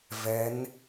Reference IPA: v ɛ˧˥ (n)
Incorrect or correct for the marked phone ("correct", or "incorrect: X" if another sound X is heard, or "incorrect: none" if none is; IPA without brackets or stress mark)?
correct